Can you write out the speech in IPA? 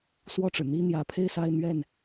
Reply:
s w ɔ˥˩ ʈ͡ʂ ɻ̩˩ n̪ i˥ n̪ j ä˧˥ pʰ e˥˧ ɪ̯ s a˥˧ ɪ̯ n̪ ɥ ɛ˥˩ n

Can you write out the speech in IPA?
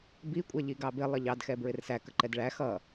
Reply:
b i kʷʼ ɛ ʎ i ɡ ɑ b ɪ lˠ ə ʎ ɑ d x ɛ b ɹ ɪ r s æ k ə ǃ ɛ d ɭ æ x ʌ

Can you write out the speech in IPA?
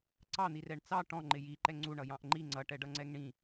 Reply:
ǀ ɑ n̪ i r ɛ ɳ t͡s ɑ ʈ ɔ̃ ŋ͡ǃ ɪ j i ǃ ɛ ŋ͡ǀ u ɳ ʌ j ɑ̃ ʔ ŋ͡ǃ i ŋ͡ǀ ʌ ʈ ɛ ɖ ʌ ŋ͡ǀ ɛ ŋ ɳ ĩ

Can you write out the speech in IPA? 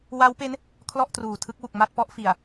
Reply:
w a˦˥ w p e˦˥ n | kʰ l ɔ˥˩ ʔ t r uː˨˩ tʰ ɯ˦˥ k̚ w u˨˩ k̚ m a˥˩ t̚ p ɔ˦˥ ʔ f i˨˩ a̯

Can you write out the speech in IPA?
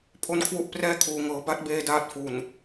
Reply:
pʰ o˦˥ n kʰ w u˥˩ ʔ p r ɛː˥˩ kʰ uː˩˦ ŋ ɤː˩˦ b a˦˥ t̚ b eː˧ d aː˦˥ t̚ f u˨˩ n

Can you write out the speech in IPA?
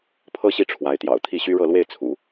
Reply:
pʰ ɤ˥ ɕ i˥˩ ʈ͡ʂʰ w a˧˥ ɪ̯ t̪ j ɑ̰˨˩ ʊ̯ t̪ʰ i˥˩ ɕ y˥ ɻ ɤ˥˧ l w e˥˩ ɪ̯ t͡sʰ ṵ˨˩˦

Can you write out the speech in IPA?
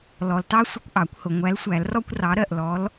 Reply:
l ɔ˨ l t ɑ˦ sʷ ə˦ kʷ ʔ ɑ˨˩˦ kʷ h ʊ˨ ŋʷ æ˨˥ l sʷ æ˨˩˦ l r ɔ˦ kʷ r ɑ˨˥ ɾ ɜ˥˩ ʔ l ɔ˨˥ l

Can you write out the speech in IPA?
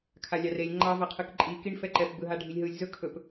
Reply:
kʰ a lʲ ɑ r e lʲ ŋ͡ǃ ɑ v a qʰ ɯ k ǃʼ i k i ɳ f ɛ ǃ ɛ p b ɯ ɦ a ɖʱ i lʲ ɦ ɯ lʲ z ɵ kʰ ɵ p

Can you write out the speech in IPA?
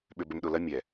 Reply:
ɓ ʏ˨ b ʏ˨ m ɗ ʊ˨ l ɐ˦ mʲ ɛ˨

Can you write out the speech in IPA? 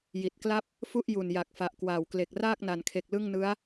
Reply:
j i˨˩ t̚ k l a˥˩ p̚ | f u˥˩ ʔ j u˨˩ n j a˨˩ k̚ f a˨˩ ʔ k w aː˨˩ w k l e˨˩ k̚ r aː˥˩ k̚ n a˨˩ n kʰ e˨˩ k̚ l ɯ˥˩ ŋ n ɯ˦˥ a̯

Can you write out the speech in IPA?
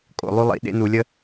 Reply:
kʼ o̰˧ lˠ y˦ lˠ ḭ˧ ɗ ḛ˦ n u˧ lʲ ə˦

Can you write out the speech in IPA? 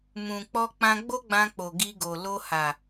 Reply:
m ũ˨ k͡p ɔ˧ k͡p ã˧ ɡ͡b o˦ ɡ͡b ã˧ k͡p o˨ ɡ i˧ ɡ o˨ l o˧ h a˨

